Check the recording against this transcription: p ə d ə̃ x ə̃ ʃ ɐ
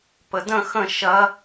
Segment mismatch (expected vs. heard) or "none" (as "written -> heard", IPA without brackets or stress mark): none